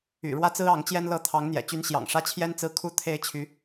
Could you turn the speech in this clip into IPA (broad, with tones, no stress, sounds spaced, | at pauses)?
y̰˨˩ ɻ w ä˥˩ t͡s ɹ̩˥ ɑ˧˥ ŋ t͡ɕ j ɛ˥ n l ɤ˥ t̪ʰ ɑ˧˥ ŋ n̪ j ɛ̰˨˩ t͡ɕ y˧˥ n ɕ j ɑ̰˨˩ ŋ ʂ ä˥ t͡ɕʰ j ɛ˥ n t͡s ɹ̩˥˩ kʰ u˥ t̪ʰ e˥ ɪ̯ t͡ɕʰ y˧˥